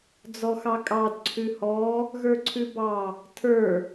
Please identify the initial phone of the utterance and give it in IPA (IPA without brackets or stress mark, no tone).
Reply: d͡z